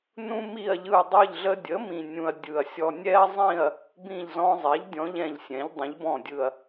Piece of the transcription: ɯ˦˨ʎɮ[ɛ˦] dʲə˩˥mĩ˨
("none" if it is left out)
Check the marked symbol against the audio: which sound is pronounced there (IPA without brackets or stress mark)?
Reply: ə˦